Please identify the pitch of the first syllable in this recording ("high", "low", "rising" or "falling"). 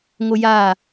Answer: high